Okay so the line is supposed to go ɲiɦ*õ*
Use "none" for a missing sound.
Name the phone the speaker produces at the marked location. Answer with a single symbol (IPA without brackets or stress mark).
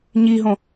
õ